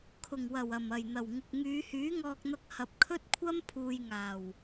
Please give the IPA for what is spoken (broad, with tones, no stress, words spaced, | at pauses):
kʰʊ˨˩ŋwɐ˨˩wɐ˨˩m ɐ˨˩jn̪ɐ˨˩wŋɪ˨k̚ ŋyː˨˧hyː˨˥ŋɔː˧k̚n̪ɐ˧k̚ hɐ˨p̚kʰɵ˥t̚kʷʰɐ˥m pʰuː˨jŋaː˨˩w